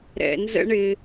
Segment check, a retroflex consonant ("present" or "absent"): present